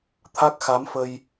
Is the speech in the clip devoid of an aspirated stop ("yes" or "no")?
no